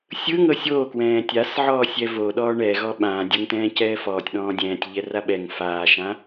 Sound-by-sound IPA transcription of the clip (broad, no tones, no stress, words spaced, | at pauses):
sʲɯŋɤ sʲoːkwɛ̃ː tʲas ʕɔːsʲɛvo ɗɔːɳɛɣɔ ɓã dʲoŋt̪ɛ̃ːcɛːfɔːtʲ ɗɔ̃ːdʲɛ̃ːtʲ ʎɛraɓɛŋ faːʃã